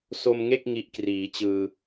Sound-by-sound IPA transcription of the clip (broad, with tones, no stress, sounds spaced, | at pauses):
s o˧ m ŋ e˥˩ k̚ ŋ i˦˥ ʔ k r iː˩˦ t͡ɕ ɯː˧